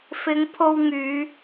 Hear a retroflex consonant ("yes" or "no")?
no